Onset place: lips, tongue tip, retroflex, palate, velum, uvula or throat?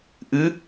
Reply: throat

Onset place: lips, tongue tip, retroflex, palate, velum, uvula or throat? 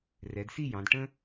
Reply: tongue tip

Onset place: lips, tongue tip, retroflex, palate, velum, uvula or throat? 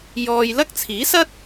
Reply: palate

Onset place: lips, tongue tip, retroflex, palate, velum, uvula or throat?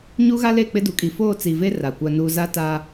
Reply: palate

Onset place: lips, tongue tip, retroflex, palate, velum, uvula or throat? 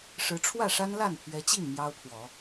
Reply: retroflex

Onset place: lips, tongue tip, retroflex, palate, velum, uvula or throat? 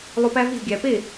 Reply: tongue tip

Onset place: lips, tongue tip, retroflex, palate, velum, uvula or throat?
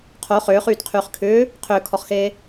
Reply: uvula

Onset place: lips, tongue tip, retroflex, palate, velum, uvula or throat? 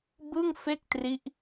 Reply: lips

